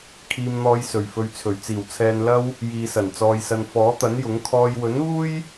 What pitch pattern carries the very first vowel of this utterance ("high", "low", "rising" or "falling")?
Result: low